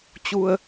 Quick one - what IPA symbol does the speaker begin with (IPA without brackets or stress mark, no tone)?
t͡ɕ